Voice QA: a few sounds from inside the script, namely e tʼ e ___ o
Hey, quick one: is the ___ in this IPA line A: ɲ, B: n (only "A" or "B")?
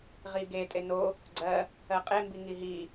B